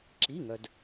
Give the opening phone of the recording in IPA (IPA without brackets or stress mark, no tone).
ǁ